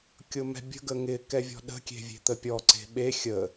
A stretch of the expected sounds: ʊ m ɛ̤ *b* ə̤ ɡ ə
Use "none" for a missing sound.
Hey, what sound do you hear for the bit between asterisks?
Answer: bʲ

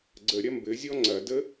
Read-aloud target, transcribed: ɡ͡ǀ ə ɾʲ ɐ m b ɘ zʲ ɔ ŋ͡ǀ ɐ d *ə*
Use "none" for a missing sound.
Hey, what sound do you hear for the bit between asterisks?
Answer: ə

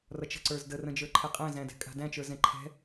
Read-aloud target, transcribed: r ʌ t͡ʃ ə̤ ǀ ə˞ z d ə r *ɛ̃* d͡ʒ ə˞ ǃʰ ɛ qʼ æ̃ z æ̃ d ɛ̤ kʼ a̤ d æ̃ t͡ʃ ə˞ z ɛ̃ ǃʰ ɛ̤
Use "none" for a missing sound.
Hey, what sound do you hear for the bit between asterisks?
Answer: ə̃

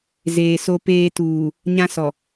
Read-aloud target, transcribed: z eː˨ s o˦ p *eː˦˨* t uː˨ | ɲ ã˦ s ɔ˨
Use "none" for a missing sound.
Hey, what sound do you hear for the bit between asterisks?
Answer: eː˦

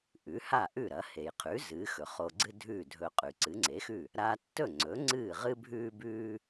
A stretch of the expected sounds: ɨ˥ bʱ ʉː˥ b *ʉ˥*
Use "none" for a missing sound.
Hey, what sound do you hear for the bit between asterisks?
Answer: ʉː˥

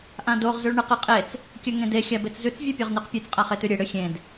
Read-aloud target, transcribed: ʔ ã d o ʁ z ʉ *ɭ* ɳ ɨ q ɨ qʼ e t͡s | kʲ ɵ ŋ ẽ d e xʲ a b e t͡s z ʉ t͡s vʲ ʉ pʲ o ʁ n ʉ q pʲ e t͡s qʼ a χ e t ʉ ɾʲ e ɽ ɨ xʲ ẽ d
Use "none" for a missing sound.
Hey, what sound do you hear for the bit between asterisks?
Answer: ɭ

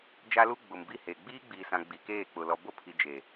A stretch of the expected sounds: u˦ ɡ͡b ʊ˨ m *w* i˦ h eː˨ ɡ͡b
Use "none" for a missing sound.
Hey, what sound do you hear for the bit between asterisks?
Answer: b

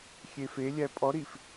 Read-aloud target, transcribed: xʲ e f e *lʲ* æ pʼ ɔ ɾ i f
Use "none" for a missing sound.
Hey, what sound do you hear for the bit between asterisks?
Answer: lʲ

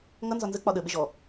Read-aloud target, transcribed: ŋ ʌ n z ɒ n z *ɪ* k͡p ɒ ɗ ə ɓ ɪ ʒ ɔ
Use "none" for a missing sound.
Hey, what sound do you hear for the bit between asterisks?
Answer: ə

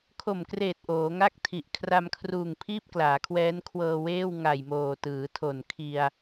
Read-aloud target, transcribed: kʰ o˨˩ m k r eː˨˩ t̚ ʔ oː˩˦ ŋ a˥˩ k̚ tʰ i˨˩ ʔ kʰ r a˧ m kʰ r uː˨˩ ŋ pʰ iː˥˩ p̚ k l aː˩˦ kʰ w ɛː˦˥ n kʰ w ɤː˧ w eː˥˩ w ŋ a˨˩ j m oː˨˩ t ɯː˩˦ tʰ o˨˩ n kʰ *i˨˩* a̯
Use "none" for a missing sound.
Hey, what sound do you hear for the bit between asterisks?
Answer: i˧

